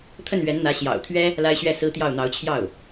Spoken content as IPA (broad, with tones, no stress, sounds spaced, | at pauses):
t̪ʰ ə˥˩ n ɥ ɛ˧˥ n n̪ ä˧˥ ɕ j ɑ̰˨˩ ʊ̯ t̪ʰ ɥ ɛ˥ | l a˥ ɪ̯ ɕ ɥ ɛ˥˩ s ɹ̩˥ t̪ j ɑ˥˩ ʊ̯ n̪ ɑ˧˥ ʊ̯ t͡ɕʰ j ɑ˥˩ ʊ̯